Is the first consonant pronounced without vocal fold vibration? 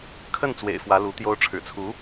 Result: yes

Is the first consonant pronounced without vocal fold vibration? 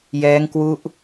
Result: no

